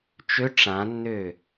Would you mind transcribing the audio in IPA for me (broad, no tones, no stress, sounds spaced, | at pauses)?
t͡ʃ ø ʈ͡ʂ ã nː ø